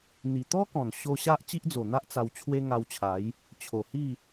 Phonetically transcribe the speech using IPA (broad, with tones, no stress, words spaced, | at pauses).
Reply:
n̪i˨˩t̪ɔ˦kɔ̃˨˩n ɕo˧ɕa˦ʔ t͡ɕi˦ʔd͡zo˨˩n̪a˦ʔ t͡sa˧wt͡ɕʰwe˦ŋa˧wt͡ɕʰa˨˦j | t͡ɕʰo˨˩hi˥˧